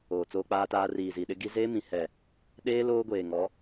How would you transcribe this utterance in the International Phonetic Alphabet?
oː˨t͡soː˦k͡paː˦taː˦ riː˨zi˨ɗɪ˦ ɡi˦ zeː˦mĩ˨ hɛ˨ | ɗeː˦ loː˦ɡʷeː˨ŋɔ˨˦

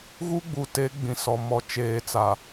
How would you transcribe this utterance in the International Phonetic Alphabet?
ɣu˦ɡ͡bu˨te˨˦ ɡ͡bĩ˨sɔ˨mɔ˨ t͡ʃeː˨t͡sa˨

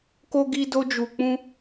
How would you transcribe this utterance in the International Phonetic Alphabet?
ko˧ɡi˧do˧ d͡ʒu˨k͡pũ˧

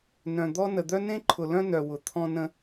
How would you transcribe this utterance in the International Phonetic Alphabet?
nœ̃˨d̪ɔ˦ nə˨d̪œ˦ nẽ˦ǃʰʊ˨lœ̃˦nœ˨ wʊ˨ t̪ʰɔ̃˦nə̃˦

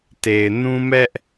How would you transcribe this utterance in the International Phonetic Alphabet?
te˨ɪ̯ nũ˦mɛ˦ʔ

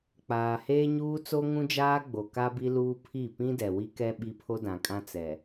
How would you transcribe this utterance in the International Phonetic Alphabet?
k͡paː˨heː˦ɲuː˦ t͡so˦ŋũ˦d͡ʒaː˦ ɡ͡bo˨ka˦bi˦ luː˦pʰi˦˨ pĩ˦dɛ˨wi˦kɛ˦ ɓi˦ pʰo˦dã˨kʼã˦ t͡sɛ˨

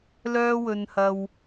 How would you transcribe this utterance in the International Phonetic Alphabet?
lœː˥wɵ˧nhɐ˧w

